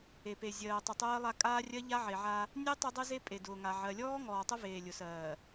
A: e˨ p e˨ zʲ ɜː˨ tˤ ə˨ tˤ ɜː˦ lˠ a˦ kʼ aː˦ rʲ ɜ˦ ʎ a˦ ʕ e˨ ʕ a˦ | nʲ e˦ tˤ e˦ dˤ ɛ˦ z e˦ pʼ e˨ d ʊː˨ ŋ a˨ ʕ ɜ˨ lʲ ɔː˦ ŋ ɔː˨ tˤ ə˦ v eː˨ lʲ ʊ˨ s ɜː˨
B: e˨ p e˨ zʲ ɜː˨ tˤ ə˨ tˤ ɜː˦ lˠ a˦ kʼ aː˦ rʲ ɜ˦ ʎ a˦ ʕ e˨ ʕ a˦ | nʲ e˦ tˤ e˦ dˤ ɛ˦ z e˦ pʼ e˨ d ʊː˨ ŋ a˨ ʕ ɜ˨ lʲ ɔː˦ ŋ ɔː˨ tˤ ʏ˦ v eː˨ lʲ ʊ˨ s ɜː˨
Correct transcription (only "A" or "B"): A